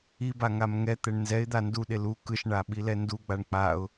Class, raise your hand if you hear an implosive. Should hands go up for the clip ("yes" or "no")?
yes